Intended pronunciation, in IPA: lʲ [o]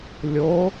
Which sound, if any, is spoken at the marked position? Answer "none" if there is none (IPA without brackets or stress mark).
o